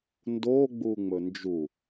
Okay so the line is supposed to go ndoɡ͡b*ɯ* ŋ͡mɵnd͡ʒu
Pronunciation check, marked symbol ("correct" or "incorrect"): incorrect